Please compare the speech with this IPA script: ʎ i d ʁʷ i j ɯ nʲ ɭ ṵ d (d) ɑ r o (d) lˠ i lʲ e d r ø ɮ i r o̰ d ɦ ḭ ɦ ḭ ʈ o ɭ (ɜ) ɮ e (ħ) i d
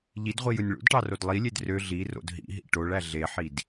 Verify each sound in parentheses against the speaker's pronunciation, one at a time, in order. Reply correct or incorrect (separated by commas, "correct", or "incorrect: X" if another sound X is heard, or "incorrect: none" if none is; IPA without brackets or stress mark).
incorrect: ʈ, correct, incorrect: æ, correct